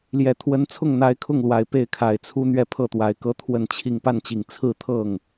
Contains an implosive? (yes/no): no